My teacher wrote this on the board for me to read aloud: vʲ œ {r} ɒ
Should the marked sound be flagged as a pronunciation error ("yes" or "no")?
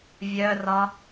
no